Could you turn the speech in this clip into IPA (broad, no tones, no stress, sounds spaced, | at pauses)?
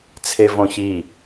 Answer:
t͡sʰ e v õ ç i